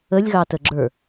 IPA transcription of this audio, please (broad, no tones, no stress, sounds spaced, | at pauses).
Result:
ə lʲ ɣ ɑ t ə ɡ͡ǁ ə˞